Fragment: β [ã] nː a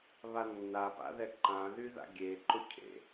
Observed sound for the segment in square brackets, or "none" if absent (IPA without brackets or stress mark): a